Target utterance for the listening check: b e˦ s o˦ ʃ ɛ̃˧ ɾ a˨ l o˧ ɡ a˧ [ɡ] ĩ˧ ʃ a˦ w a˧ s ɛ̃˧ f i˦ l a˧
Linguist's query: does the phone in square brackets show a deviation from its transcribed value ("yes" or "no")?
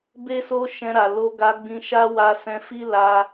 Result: yes